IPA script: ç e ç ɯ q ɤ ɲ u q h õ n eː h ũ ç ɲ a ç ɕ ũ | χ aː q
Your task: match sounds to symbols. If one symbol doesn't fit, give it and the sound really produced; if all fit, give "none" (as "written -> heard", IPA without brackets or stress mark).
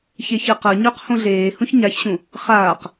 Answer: n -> ɮ